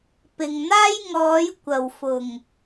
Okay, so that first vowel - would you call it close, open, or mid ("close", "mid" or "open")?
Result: close